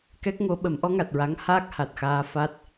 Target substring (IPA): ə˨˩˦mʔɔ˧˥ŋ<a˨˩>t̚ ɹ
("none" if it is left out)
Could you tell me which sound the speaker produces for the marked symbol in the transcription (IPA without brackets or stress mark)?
a˨˩